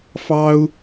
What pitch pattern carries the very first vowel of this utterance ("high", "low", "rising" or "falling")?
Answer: high